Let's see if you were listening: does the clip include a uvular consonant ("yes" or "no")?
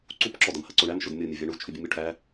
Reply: no